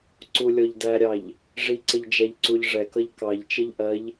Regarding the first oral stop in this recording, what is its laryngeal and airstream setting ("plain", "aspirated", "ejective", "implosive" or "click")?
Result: click